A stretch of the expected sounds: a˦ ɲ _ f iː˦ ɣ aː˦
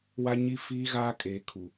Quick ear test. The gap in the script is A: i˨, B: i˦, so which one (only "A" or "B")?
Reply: B